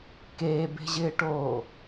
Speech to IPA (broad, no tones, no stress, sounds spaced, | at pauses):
k eː b e̤ ʑ ɪː ʈ oː